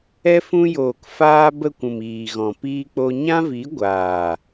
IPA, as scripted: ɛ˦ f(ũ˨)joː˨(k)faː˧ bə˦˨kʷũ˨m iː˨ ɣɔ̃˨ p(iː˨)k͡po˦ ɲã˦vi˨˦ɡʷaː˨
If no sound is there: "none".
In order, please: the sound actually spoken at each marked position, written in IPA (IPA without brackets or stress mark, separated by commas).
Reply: ũ˧, k, iː˦